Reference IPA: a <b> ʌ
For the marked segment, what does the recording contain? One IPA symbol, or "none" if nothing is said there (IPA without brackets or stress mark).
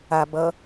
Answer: b